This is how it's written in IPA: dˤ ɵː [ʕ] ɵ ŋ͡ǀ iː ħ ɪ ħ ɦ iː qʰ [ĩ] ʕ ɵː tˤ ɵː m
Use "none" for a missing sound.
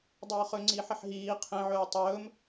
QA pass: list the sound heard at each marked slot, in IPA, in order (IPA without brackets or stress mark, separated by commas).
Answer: χ, ẽ